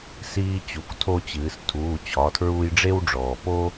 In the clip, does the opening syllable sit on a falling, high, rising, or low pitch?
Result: high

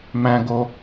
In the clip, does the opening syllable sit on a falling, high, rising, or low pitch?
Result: high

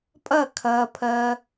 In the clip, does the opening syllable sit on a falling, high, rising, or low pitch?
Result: falling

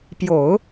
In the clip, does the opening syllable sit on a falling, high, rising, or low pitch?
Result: low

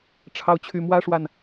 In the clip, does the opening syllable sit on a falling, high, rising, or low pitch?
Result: rising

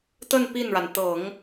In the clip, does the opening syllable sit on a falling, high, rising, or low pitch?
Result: falling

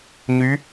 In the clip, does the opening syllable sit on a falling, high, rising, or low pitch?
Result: rising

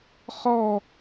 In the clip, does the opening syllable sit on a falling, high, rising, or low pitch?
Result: falling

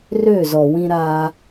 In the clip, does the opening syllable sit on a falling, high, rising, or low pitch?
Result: falling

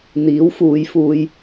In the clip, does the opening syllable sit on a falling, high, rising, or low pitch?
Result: rising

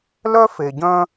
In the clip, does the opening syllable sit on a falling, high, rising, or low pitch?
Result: high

